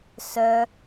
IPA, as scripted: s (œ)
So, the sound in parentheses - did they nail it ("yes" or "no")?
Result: yes